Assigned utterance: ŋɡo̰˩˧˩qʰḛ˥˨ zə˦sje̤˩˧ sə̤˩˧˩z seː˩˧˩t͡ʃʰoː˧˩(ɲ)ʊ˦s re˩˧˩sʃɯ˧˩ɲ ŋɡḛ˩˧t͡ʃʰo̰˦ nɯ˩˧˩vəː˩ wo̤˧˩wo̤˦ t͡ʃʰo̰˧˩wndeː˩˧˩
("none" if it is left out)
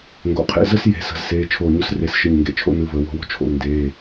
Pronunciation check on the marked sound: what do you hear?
ɲ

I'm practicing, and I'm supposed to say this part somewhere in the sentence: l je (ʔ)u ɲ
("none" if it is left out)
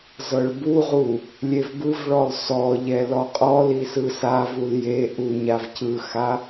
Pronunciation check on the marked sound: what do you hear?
ʔ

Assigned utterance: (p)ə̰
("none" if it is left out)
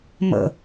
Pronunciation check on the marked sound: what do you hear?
m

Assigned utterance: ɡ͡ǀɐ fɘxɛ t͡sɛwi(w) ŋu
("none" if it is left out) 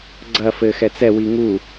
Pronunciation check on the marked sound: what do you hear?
none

